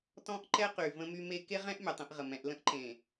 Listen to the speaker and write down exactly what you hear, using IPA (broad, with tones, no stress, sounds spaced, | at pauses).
t ɔ̃˦ ʔ ǃ ɛ˦ q y˨ v ə̃˦ m y˦ m e˦ k e˦ ʁ ɛ̃˦ ʔ mʲ ə˨ tˤ ẽ˦ ʔ ʁ ə˨ m ɛ̃˨˦ ʔ l ə̃˦ ʔ ǃ ẽ˨